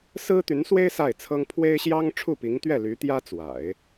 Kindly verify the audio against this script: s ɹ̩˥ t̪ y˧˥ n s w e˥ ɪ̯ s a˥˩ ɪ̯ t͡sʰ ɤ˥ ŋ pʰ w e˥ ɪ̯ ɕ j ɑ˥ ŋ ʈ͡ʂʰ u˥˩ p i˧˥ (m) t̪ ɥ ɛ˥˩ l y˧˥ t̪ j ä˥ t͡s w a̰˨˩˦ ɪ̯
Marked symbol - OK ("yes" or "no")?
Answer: no